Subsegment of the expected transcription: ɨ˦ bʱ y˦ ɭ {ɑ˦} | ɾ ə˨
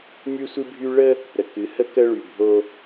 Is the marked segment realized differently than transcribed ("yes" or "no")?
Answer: yes